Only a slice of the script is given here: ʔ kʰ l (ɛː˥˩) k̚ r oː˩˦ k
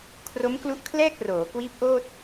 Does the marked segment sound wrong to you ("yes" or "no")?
no